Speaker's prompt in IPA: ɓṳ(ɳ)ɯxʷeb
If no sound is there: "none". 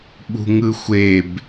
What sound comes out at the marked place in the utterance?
ŋ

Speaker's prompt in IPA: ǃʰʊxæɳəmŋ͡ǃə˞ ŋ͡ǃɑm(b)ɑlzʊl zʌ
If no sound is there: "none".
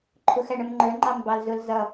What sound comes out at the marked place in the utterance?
b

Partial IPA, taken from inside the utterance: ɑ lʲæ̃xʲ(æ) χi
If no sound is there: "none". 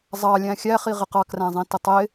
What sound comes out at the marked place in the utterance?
æ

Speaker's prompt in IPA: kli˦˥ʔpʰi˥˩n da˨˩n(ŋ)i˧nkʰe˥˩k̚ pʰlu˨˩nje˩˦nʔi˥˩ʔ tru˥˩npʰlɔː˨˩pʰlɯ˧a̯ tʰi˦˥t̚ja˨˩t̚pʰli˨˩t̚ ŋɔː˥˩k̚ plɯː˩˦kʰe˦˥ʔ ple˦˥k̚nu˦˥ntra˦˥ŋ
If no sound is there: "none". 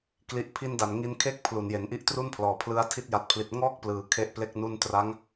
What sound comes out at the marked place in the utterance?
ŋ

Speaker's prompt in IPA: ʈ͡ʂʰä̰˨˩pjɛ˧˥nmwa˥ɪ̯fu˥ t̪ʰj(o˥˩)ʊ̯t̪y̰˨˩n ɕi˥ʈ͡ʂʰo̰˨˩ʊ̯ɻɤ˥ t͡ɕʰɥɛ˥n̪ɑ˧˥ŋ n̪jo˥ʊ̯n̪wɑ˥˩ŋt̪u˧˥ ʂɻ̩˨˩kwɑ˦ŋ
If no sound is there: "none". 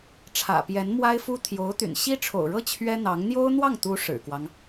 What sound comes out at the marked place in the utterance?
o˧˥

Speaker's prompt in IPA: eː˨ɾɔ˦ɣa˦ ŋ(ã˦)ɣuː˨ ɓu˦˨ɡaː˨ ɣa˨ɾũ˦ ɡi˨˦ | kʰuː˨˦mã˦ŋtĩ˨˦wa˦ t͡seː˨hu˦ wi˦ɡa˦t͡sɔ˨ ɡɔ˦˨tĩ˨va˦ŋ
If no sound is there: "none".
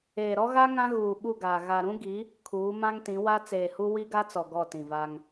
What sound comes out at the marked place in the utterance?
ã˦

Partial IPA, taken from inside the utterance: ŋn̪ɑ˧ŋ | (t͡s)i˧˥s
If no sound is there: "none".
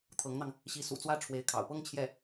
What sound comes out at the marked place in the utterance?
ɕ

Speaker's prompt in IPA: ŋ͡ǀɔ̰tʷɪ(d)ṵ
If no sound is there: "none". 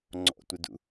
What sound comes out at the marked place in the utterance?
d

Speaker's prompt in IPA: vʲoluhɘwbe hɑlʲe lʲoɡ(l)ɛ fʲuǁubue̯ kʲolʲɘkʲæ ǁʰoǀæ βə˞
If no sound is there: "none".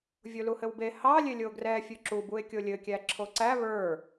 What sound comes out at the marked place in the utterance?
r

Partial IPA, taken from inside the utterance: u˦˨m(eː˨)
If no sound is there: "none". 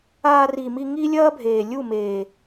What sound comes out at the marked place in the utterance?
eː˨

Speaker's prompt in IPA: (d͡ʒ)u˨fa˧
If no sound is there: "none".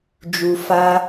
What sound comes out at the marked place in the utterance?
d͡ʒ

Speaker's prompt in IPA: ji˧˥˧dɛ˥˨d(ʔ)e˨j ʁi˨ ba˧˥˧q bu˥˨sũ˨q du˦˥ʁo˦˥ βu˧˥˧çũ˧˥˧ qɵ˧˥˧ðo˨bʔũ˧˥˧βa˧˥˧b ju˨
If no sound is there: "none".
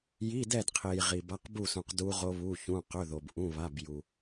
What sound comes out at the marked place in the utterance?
qʰ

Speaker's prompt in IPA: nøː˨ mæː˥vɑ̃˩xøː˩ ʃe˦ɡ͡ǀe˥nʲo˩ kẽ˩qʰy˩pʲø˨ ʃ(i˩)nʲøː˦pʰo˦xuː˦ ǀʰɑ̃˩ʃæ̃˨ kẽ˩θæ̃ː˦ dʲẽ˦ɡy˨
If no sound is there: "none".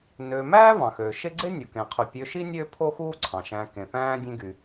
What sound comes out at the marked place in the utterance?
i˥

